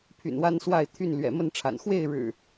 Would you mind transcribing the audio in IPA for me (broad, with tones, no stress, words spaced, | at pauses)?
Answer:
pʰy̰˨˩nwa˦nswa˥˨ɪ̯t̪ʰy˥˨n lɥɛ̰˨˩ mə˥˨nʈ͡ʂʰa̰˨˩n xwe˥˨ɪ̯ɻɻ̩˨˩